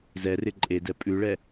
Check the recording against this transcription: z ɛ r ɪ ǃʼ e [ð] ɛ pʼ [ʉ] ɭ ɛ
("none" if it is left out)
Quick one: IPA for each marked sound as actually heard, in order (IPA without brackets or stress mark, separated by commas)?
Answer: d, ʉ